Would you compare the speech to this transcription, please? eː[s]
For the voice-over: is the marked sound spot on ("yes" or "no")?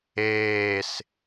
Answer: yes